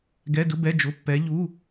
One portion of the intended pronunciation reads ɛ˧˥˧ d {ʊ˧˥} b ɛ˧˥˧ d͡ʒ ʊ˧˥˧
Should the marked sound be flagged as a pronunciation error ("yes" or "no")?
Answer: yes